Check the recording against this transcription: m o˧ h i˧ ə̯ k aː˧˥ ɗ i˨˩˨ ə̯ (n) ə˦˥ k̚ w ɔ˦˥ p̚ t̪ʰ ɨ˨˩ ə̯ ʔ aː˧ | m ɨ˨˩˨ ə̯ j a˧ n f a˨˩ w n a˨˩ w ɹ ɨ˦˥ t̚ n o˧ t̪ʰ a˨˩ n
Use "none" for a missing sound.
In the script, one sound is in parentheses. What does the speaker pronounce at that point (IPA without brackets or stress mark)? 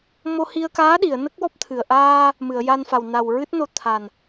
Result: n